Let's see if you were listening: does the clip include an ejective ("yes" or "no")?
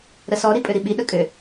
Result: yes